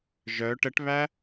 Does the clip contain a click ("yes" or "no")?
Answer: no